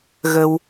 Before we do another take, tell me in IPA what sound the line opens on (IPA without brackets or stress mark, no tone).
ɣ